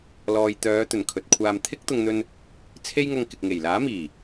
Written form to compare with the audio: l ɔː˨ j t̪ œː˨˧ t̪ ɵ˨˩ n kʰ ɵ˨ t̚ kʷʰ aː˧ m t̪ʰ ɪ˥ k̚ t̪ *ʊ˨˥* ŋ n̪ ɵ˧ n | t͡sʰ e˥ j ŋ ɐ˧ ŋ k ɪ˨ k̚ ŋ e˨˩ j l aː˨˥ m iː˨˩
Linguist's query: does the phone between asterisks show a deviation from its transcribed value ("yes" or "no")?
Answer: yes